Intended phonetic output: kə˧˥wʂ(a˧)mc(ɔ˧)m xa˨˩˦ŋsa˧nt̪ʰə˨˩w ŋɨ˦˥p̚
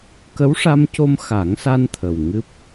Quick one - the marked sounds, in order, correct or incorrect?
correct, incorrect: o˧

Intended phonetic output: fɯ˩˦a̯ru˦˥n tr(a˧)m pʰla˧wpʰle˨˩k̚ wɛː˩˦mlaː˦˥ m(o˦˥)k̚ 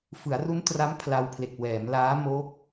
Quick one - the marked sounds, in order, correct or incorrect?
incorrect: a˦˥, correct

